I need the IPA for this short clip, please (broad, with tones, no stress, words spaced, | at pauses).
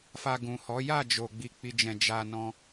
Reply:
fa˧ɡũ˨hɔ˨˦ ja˦˨d͡ʒo˨ ɡ͡bi˧k͡pi˧d͡ʒɛ̃˧ d͡ʒa˧ nɔ̃˦